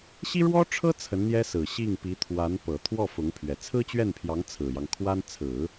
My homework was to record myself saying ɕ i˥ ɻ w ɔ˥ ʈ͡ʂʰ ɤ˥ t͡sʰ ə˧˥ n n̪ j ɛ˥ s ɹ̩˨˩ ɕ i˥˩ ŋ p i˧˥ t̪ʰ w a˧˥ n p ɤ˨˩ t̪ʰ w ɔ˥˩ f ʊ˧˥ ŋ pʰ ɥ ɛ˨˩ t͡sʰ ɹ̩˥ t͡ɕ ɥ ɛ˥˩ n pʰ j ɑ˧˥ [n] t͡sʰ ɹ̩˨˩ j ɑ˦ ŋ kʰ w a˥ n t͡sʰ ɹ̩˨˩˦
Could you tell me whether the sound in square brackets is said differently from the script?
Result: yes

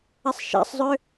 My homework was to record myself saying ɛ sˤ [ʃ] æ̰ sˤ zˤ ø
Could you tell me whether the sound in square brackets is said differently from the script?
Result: no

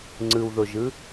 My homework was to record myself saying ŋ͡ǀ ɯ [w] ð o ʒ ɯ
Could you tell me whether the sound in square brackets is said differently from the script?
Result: no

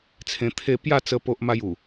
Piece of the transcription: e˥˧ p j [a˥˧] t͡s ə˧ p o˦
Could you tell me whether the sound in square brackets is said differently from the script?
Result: no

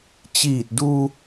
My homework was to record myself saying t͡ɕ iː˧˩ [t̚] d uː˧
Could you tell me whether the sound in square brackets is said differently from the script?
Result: no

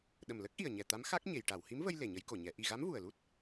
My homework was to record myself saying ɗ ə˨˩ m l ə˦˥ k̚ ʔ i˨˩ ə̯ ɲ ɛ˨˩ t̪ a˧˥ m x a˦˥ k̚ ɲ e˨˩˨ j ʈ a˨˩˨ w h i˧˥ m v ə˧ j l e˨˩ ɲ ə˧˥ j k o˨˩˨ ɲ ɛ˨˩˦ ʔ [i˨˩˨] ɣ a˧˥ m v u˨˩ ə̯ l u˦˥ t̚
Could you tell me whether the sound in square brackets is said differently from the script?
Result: yes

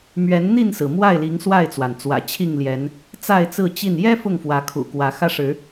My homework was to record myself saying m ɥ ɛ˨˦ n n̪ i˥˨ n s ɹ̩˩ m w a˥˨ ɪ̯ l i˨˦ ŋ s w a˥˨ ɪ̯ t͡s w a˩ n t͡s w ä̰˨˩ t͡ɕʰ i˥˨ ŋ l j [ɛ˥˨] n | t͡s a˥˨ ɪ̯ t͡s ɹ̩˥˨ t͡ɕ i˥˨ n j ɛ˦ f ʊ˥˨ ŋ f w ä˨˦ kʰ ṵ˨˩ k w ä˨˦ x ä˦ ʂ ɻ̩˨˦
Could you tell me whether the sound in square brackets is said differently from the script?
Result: yes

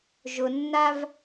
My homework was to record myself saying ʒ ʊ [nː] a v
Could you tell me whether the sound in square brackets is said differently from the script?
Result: no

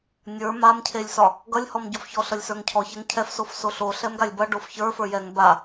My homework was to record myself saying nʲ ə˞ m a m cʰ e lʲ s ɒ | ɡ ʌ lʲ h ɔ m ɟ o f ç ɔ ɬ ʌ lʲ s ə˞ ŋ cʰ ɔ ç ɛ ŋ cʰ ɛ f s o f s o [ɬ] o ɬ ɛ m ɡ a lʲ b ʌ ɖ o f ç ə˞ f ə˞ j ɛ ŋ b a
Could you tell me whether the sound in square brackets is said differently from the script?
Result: no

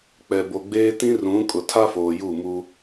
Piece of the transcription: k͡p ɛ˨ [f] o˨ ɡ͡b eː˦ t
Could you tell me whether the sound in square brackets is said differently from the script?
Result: yes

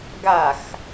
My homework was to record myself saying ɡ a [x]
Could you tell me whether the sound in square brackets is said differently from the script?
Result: no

